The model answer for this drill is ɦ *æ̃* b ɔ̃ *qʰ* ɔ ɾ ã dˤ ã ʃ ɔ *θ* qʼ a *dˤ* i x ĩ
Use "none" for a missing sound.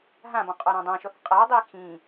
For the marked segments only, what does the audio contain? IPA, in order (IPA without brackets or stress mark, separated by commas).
ã, qʼ, θ, dˤ